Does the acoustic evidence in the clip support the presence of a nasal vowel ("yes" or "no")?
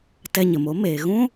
yes